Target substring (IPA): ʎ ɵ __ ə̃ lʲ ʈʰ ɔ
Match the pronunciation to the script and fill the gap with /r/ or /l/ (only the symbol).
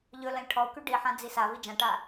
l